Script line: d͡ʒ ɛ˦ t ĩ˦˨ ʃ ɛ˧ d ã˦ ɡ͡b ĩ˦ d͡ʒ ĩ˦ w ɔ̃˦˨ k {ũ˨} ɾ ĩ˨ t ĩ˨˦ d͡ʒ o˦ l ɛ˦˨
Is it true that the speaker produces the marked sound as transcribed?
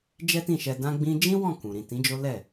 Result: yes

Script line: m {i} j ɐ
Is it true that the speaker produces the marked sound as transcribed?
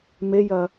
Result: no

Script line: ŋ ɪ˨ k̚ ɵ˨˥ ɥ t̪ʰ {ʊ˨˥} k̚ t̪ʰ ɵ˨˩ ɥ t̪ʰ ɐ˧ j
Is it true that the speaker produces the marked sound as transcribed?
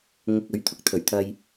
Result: no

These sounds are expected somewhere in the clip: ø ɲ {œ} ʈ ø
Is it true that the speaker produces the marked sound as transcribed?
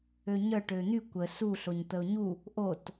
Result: yes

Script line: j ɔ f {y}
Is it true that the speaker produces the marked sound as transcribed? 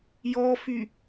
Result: yes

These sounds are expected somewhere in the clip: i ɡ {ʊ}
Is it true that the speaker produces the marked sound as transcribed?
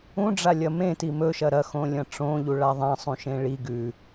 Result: no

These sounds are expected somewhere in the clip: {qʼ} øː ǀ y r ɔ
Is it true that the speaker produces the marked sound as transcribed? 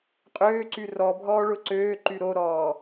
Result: yes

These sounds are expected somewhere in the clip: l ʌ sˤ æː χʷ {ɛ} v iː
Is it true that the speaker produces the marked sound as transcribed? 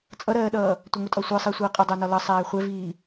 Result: yes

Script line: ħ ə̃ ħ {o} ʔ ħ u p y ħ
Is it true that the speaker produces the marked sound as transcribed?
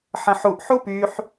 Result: no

